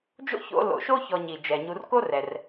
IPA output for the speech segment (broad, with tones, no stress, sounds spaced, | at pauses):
d͡ʒ o̰˥ ç o̰˦ l o̰˨ ʃ o˥ ç ɔ˨ ɲ i˩ d͡ʒ ɛ˩ ɲ u˨ r k o˥ r ɛ˩ r